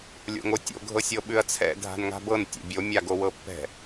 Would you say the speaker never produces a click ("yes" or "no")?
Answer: yes